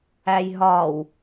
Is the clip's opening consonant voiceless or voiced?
voiced